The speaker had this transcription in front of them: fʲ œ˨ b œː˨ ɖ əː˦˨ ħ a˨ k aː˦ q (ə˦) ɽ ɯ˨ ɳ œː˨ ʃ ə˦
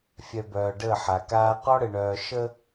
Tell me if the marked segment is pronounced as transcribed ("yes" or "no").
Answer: no